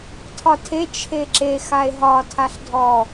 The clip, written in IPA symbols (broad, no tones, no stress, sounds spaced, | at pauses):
tʰ ɒ tʰ e t͡ʃʰ e ǁ e x a e̯ ɦ ɒ tʰ a ɬ dʱ ɔ